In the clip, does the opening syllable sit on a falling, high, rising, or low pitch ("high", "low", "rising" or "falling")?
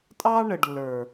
high